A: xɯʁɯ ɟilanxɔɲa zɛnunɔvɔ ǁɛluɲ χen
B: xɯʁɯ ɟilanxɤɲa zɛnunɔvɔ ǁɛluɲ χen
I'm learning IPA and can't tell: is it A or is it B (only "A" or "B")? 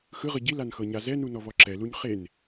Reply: B